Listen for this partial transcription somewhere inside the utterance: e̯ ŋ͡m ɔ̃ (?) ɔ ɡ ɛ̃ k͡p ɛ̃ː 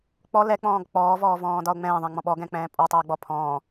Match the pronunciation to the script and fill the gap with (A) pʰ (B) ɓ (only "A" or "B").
B